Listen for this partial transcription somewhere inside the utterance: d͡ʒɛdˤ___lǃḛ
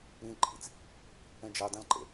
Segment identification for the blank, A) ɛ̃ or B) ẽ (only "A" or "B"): B